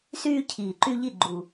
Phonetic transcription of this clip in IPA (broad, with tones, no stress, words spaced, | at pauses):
syː˦cʰiː˨˩ǃy˦ʎi˦˨ ɡ͡ǃu˨˩